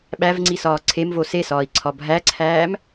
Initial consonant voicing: voiced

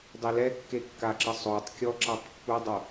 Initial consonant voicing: voiced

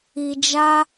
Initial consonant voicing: voiced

